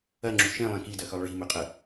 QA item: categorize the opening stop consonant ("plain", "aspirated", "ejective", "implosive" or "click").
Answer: click